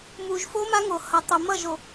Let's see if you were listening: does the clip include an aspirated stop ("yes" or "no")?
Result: no